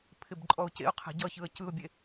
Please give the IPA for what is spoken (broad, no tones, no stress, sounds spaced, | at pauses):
pʰ ɪ b ǃʼ ɔ ʊ̯ c ḛ ʊ̯ qʰ ɛ̤ ɟ ʌ ç ɯ ə̯ c ɯ ʊ̯ bʲ e